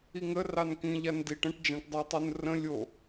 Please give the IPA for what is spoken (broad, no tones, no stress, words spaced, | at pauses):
iŋə rɑnkĩ ʎandiʈ ə̃ʈd͡ʒãʈdˤɑtˤun rə̃ lʲo